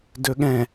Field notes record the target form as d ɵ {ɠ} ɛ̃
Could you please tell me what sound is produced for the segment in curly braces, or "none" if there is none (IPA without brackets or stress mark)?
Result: ɠ